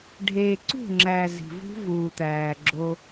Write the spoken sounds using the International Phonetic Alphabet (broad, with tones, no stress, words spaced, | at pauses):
ɖʱeː˨ǀṳ˦˨ŋ͡ǁæː˨ zi̤˨vṳ˦vuː˨t̪æː˨ ɡ͡ǁo˦